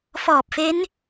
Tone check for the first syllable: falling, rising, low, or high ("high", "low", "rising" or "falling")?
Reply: low